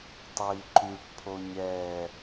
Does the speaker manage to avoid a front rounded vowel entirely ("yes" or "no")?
no